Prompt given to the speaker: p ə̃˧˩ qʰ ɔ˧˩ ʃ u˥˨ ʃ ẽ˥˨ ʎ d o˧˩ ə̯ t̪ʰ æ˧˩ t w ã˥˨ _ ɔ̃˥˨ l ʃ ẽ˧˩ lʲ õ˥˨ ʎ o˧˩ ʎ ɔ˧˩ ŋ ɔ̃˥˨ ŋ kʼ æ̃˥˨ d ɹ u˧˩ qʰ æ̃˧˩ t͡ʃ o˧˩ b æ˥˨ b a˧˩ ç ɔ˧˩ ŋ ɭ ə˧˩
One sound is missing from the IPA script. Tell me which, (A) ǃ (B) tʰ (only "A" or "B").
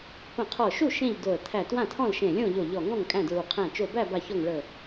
B